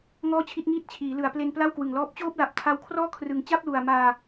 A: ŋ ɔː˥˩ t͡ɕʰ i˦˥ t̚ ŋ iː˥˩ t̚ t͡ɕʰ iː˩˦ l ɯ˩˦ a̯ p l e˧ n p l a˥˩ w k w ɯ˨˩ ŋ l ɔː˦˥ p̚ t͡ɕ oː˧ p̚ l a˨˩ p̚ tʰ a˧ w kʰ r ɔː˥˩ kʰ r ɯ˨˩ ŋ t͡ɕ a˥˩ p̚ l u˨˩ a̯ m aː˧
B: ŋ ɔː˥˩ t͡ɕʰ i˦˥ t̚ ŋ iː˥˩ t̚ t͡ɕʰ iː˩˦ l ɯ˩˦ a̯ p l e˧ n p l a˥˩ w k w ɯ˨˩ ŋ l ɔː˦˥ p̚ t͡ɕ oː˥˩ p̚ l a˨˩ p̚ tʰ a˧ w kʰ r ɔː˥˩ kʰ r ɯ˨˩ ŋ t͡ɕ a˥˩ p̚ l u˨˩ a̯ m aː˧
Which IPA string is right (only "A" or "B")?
B